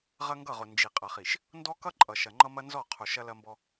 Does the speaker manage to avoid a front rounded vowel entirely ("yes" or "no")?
yes